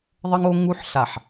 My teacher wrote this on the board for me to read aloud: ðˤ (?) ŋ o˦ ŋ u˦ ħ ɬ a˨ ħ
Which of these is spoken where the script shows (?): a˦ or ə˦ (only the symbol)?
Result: ə˦